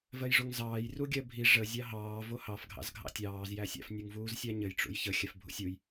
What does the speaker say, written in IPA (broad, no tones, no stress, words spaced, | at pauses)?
vɜjʐoŋzɑːj ruɡʲɜbʱi ʐə zʲɑɦɑː vohɑf ɡʱɑ̰zɡʱɑ̰tʲɑːz jæsʲa̰f nʲuŋvuːzsʲaɲɘj ʈ͡ʂṵjçə xʲafbʱṵsʲuj